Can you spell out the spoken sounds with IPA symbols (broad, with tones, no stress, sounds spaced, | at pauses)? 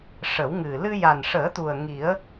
ʂ ə˨˩˦ w ŋ ɨ˨˩ l ɨ˧ j a˨˩ n ʂ əː˨˩˦ t̪ u˨˩ ə̯ ŋ i˨˩˦ ə̯